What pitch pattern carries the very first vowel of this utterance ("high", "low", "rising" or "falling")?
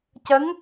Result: rising